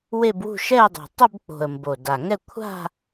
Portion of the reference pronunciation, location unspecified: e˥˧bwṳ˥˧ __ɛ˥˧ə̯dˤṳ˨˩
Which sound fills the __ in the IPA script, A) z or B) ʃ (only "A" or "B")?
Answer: B